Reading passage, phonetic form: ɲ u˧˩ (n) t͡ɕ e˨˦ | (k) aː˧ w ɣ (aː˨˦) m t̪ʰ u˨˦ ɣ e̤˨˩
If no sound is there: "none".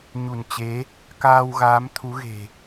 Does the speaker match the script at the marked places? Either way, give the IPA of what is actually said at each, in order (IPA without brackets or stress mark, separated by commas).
n, k, aː˨˦